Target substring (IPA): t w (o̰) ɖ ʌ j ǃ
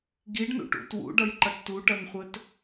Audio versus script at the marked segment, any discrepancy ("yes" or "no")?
yes